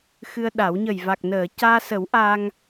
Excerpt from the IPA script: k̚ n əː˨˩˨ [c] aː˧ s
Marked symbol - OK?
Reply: yes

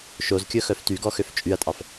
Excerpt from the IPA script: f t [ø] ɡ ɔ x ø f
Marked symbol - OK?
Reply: no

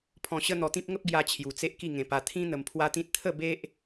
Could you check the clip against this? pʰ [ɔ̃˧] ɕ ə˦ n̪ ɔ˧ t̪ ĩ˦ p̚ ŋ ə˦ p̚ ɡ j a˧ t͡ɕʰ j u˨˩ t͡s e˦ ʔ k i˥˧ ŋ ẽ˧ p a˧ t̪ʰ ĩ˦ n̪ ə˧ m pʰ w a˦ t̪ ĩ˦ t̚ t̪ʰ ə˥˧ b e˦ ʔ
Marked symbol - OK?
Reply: yes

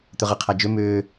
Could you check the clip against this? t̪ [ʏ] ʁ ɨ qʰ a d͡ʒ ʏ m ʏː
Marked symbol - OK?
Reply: yes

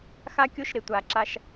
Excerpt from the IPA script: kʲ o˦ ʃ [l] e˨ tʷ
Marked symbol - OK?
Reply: no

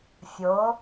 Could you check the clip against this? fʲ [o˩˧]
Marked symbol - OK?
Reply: yes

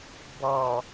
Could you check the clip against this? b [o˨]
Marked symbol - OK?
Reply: no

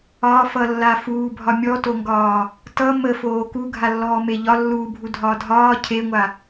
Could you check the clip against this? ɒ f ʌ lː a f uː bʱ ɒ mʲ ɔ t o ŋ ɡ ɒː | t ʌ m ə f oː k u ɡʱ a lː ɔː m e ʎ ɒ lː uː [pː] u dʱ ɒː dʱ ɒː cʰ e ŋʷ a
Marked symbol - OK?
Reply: no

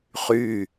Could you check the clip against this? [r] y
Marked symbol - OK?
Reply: no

